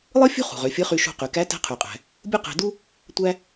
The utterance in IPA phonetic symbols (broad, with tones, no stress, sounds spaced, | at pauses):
lˠ ɯ˥ fʲ ṳ˥ χ ṳ˩ ʁ ø˩˧ fʲ ɯ˧˥ χ y˧ ʃ ṳ˧ q y˩ k æ˧˥ t æ̤˧˥ qʰ y˩ qʼ æ̤˩ | bʲ u˥ q æ̤˧ d u˥ | tʷ æ˥